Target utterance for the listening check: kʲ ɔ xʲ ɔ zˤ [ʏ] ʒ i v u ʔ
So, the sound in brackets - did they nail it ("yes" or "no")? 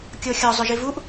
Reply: yes